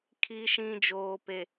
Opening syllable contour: low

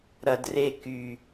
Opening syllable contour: low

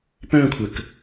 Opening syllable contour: falling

